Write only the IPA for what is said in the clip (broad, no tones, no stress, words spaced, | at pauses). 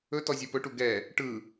ɵ tɔzʲopɵʈu ɡɛ | ʈɯ